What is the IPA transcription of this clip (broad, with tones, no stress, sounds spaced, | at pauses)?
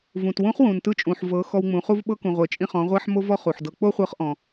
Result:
v ũ˩ t w ũ˧˥ χ w ũ˩ n t ɯ˧ t͡ʃʼ ũ˩ ħ v ɤ˩˧ x ɔ˧ w ŋ͡m ũ˩˧ χ u˥ v ɓ ɤ˥ k ũ˩ ʁʷ e˩ t͡ʃʼ ĩ˧ χ ɔ̃˩˧ ʁʷ a˥ ħ m o˥ v ɔ˥ χ u˩ ħ d ɤ˧ k͡p o˥ χʷ ɤ˧˥ χ ʔ ɔ̃˩